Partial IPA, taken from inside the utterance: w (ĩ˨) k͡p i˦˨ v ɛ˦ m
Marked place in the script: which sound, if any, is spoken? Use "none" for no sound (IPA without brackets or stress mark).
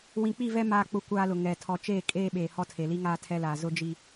ĩ˨